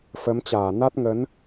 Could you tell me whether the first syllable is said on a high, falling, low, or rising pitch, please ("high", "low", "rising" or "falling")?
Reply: rising